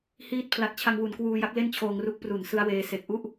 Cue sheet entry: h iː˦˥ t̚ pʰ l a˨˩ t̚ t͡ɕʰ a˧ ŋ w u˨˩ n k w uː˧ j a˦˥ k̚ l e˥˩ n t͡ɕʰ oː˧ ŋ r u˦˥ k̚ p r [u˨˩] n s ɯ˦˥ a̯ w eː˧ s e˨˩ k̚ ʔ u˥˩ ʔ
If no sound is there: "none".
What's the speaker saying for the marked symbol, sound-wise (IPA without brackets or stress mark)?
u˨˩